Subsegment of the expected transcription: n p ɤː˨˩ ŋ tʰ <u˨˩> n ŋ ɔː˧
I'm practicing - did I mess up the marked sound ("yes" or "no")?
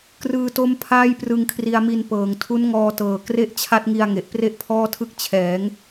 yes